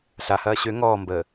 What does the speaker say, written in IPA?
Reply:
ɬ a h ɐː ɕ ø ŋ ɔː m b əː

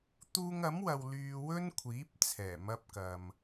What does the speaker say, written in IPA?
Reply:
t̪ uː˧ ŋ ɐ˨˥ m w ɐ˨ w l yː˧ w ɵ˥ n kʷʰ iː˨˥ p̚ t͡sʰ ɛː˨˩ m ɐ˧ p̚ k ɐ˨ m

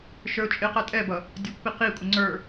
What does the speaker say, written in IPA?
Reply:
ʃ ə˞ ʊ̯ t͡ʃʼ ɪ q æ tʼ ɛ b ʌ | dʲ ɑ kʷ p i q i kʷʼ ə ŋ͡ǀ ə˞

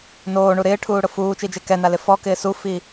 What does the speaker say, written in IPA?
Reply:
n oː ɳ u ɾ ɪː ʈʰ uː ɽ ʊ f uː t͡ʃ i d͡ʒ e k ɛ n a l ɪ f ɔ k ɪː s u f i

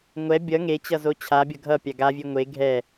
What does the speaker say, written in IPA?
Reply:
ŋʷ ɛ bʲ ʌ ŋ e t͡ɕ ʌ z o t͡ɕʰ a bʲ ʌ ɡʱ ʌ pʲ a ɡ a vʲ e ŋʷ e ɡʱ ɛ

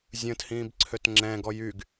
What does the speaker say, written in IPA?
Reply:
zʲ ə̃ː t h ĩː b ǀʰ ø t ŋ͡ǁ ɛ̃ ɡ ɔ j y ɡ

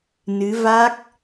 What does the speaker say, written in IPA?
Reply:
n ɨ˨˦ v a˦˥ k̚

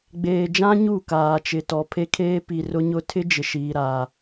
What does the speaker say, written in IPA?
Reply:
ɡ͡b eː˨ d͡ʒ ã˦ ɲ u˦˨ k aː˨ t͡ʃ ɪ˨ t ɔ˨ pʰ e˦ kʰ eː˦ p i˨ r ʊ˦ ɲ ʊ˦ tʰ ɪ˦ d͡ʒ ɪ˨ ʃ iː˨ ɾ aː˨

